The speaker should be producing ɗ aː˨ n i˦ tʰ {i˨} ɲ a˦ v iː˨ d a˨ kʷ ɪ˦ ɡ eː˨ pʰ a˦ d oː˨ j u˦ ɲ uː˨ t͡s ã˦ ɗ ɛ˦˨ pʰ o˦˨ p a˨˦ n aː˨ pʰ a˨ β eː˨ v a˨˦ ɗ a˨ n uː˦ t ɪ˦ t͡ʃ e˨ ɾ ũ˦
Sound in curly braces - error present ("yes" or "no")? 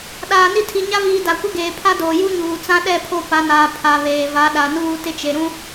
no